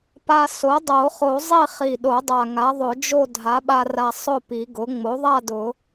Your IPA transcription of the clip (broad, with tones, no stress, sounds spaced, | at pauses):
p a˧ s o˩˥ dˤ o˨˩˦ χ o˨˩˦ zˤ i˥˨ χ i˨˩ ɗ o˨˩˦ dˤ a˨˩ ŋ a˩˥ ðˤ ʊ˨˩˦ d͡ʒ o˥˨ dʱ a˩˥ ɓ a˧ r a˧ sˤ ʊ˥˨ p i˨˩˦ ɡ ʊ˩˥ ŋ͡m o˩˥ ðˤ a˥˨ d ʊ˨˩˦